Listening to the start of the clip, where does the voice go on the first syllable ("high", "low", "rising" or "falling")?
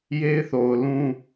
high